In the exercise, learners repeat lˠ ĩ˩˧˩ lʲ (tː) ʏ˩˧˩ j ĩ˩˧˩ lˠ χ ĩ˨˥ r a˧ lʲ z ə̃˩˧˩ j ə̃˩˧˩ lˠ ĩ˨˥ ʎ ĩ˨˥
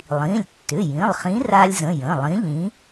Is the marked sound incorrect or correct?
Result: correct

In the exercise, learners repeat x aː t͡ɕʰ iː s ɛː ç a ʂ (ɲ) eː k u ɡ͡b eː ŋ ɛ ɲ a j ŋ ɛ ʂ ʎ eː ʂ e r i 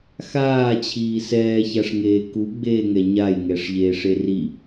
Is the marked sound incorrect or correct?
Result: incorrect: ŋ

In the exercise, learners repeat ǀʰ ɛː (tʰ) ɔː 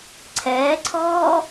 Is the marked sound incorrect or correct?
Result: incorrect: ǀʰ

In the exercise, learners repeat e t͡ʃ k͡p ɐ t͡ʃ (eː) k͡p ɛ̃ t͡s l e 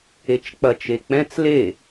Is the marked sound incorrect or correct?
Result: incorrect: e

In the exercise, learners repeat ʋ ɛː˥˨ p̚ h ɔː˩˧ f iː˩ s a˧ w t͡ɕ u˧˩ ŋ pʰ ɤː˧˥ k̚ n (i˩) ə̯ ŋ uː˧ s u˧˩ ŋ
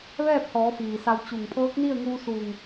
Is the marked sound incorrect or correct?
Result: incorrect: i˥˨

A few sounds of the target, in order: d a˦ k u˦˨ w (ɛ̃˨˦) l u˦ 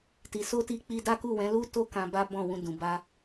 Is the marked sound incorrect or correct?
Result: correct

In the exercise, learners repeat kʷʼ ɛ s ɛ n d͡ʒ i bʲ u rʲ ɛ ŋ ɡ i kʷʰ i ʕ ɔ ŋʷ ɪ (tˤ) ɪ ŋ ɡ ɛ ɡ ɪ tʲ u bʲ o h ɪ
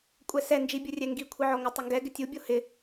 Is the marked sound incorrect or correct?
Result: correct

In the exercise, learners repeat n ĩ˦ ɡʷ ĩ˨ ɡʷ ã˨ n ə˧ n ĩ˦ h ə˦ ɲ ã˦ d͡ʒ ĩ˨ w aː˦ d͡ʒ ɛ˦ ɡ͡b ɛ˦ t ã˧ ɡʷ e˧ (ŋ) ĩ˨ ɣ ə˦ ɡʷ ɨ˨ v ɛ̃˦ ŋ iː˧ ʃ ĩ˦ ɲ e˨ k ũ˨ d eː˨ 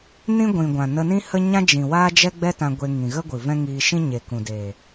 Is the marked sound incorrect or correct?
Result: correct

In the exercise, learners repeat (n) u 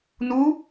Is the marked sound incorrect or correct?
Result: correct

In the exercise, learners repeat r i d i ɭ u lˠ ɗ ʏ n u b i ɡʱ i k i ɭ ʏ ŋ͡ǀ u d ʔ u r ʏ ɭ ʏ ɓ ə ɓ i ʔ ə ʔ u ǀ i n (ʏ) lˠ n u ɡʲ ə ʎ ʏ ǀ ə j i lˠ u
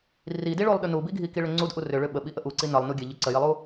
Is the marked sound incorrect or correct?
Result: incorrect: ə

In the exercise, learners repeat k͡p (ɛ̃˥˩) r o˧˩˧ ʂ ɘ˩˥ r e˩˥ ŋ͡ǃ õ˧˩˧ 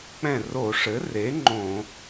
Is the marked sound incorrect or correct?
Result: correct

